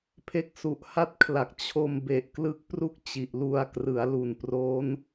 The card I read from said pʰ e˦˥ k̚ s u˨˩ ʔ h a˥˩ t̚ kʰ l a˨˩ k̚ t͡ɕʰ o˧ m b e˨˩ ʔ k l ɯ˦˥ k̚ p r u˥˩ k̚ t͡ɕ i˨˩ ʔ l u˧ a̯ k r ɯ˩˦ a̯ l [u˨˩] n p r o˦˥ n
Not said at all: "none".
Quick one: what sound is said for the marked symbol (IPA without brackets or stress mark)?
u˨˩